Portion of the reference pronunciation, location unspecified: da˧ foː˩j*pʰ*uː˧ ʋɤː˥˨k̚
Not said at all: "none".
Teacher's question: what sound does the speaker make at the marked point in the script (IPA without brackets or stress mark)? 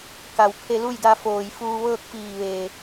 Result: f